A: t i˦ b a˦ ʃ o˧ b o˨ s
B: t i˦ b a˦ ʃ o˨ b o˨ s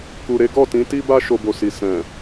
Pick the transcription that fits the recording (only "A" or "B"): A